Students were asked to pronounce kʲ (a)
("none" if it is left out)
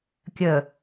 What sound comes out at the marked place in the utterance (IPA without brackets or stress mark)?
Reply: ə